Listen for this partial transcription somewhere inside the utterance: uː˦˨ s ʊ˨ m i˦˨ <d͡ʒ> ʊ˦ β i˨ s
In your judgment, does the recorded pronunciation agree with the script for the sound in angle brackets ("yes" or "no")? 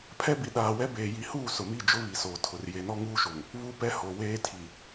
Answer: yes